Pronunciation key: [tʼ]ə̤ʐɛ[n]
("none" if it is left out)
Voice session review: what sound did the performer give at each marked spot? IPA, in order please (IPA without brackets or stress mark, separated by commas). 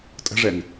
tʼ, n